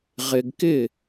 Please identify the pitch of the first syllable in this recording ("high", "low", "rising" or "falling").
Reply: low